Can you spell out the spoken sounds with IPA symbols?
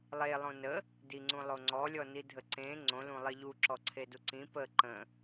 lˠ e lˠ õ n ə | d i ŋ͡ǀ ũ lˠ o ŋ͡ǀ ɔ lʲ ɔ n i dʱ ə ǀ ẽ ŋ͡ǀ õ l ũ lˠ i ʎ u ǁ ɔ ǀʰ e d u ǀ ĩ p ə ǃ ə̃

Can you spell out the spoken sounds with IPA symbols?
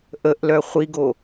ʔ ə ʔ l œ χʷ i ɡ o

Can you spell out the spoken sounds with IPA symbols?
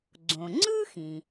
ɡ͡ǀ õ˩ ŋ͡ǀ ɯ˥ x ĩ˩

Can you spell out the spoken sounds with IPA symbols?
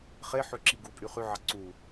χ e ħ ø ǁ i ɡ u pʼ y χ y ʕ ɑ ǀ u

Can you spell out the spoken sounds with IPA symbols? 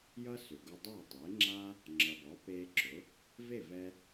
j ʌ˥ s ʏ˩ ɡ ʊ˧ dˤ ɜ˥˩ tˤ e˩˥ ŋ͡ǁ a˥ | ŋ͡ǁ ʌ˩ b ɔ˩˥ p e˧ ǁ ʊ˩˥ | v e˥˩ v ɛ˧

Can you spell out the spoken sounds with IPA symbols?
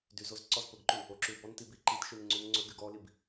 d y z o z ǀ ɔ z p ɵ ɡ ǃ ʉ | o ǁ y w b ɔ n t i b i ǃ i t ʃ y n ŋ͡ǀ ʉ n ŋ͡ǀ ɵ ɡ y ɡ ɔ l i b

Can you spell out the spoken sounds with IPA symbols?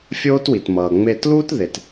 fʲ oː˦ t w i˨ t m ʌː˨ ŋ͡m e˦˨ t l uː˦ t ð e˨ t

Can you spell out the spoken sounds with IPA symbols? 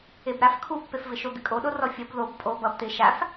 e b ɾ a f kʰ u pː e f v ɪ ʃ o d̪ ɪ kʼ o ɗ o r ɔ fʲ ʌ b ð o b pʼ o b ʌ b t̪ ɪ ʃ a f

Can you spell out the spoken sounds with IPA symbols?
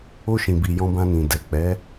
o˧ ʃ ĩ˨ b i˨ j ɔ̃˧ b ã˧ n ĩ˨ d ɛ˨ k͡p ɛ˨˦

